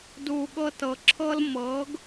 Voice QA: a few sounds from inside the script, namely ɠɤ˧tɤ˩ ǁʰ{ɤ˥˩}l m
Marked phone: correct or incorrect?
incorrect: ɤ˥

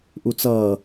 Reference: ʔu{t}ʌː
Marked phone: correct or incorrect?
incorrect: t͡s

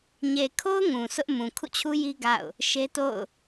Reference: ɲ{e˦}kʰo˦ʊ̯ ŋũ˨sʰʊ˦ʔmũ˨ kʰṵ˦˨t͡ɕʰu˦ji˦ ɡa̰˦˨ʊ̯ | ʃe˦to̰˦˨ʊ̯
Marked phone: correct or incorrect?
incorrect: e˨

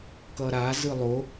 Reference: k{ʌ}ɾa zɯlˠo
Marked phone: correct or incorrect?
correct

